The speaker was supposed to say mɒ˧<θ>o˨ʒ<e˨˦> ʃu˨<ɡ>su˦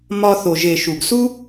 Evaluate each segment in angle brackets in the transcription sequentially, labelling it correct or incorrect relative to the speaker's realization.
correct, incorrect: e˨, correct

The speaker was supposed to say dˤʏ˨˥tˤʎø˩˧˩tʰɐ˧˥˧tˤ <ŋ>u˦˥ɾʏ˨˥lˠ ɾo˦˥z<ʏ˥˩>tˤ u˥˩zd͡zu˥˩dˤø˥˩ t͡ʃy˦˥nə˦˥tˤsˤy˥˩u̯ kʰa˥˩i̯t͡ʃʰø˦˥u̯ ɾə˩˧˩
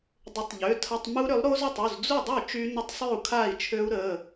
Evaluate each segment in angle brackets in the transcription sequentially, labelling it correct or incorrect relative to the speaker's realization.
incorrect: m, correct

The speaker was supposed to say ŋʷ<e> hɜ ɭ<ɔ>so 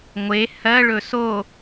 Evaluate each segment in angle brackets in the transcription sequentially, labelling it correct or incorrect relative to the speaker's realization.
correct, incorrect: ɵ

